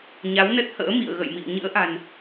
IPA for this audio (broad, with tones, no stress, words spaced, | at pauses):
ɲa˨˦wnə˦˥t̚hə̰ː˧˥ mḭ˧˨ə̯ ɣə̰˧˨jmḭ˧˨ə̯ ɲɨ̰˧˥ə̯ʔa̤˨˩n